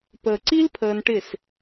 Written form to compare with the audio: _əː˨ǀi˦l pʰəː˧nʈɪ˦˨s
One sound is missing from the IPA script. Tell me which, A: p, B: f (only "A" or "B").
A